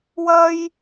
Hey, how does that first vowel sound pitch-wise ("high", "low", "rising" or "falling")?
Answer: high